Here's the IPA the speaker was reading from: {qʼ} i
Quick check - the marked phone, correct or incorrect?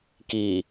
incorrect